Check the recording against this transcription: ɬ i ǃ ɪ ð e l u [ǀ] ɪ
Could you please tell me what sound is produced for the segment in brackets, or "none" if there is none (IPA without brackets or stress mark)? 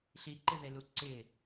ǀ